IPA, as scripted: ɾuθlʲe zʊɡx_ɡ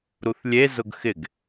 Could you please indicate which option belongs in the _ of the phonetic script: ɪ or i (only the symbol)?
ɪ